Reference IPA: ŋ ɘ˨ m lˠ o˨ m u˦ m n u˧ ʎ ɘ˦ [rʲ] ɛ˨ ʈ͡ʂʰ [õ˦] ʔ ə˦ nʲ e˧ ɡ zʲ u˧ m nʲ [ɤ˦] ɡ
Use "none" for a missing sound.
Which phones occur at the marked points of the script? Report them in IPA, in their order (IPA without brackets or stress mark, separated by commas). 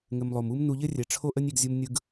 rʲ, o˦, ɯ˦